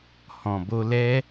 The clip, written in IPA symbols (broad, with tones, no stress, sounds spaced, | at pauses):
h ɔ̃˨ b o˧ l ɛ˦